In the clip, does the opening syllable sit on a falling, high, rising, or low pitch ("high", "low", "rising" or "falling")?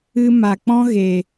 high